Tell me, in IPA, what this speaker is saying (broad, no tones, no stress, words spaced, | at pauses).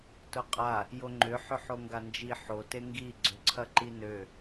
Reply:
tʊqʼa | joŋ͡ǃʏħʏ ħoŋɡand͡ʒi ħote ŋɡi ɡ͡ǀʏǀʰɐǃinø